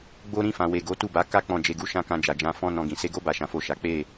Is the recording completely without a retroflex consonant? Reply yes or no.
yes